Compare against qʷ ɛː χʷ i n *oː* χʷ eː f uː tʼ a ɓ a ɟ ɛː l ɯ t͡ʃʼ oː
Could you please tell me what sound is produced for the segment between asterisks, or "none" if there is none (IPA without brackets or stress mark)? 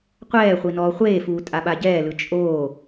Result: ɔː